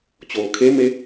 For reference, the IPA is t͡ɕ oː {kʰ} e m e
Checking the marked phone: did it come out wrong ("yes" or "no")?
no